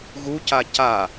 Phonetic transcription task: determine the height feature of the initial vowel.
high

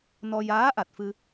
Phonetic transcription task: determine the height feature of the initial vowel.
mid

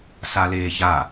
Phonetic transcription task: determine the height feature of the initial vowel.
low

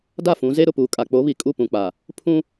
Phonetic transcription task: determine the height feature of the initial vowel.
low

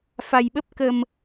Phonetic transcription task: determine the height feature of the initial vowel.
low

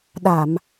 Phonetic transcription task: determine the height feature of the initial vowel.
low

